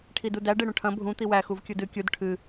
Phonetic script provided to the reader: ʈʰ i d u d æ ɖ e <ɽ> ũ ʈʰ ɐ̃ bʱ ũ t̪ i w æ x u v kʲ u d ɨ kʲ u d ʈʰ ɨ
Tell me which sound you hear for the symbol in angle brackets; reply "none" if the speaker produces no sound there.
ɽ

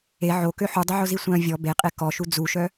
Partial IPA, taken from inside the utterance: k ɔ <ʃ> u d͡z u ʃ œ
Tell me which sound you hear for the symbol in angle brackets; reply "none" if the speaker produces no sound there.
ʃ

